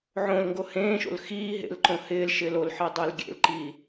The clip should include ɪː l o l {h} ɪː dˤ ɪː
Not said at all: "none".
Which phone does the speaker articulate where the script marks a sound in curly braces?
ħ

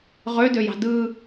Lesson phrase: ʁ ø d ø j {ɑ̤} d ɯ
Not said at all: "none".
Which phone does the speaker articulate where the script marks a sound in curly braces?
ɑ̤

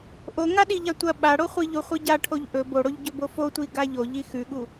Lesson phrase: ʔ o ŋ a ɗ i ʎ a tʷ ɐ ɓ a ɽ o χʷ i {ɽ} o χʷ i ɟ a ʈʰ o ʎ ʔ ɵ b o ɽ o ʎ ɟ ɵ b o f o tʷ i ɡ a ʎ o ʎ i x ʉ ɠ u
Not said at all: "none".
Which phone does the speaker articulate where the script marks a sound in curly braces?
ʎ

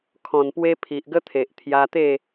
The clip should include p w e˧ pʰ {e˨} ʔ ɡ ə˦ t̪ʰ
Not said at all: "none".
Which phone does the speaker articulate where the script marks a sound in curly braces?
i˨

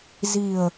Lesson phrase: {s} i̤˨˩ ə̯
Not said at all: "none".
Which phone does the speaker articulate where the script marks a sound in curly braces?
z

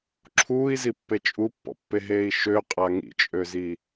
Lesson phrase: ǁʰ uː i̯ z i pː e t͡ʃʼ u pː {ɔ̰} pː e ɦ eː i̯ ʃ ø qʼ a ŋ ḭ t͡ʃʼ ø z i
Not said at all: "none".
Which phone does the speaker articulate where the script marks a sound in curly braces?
ɔ̰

